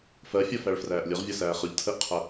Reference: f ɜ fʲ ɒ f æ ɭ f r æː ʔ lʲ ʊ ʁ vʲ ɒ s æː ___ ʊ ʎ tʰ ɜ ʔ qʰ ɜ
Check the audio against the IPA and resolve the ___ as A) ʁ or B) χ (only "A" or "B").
B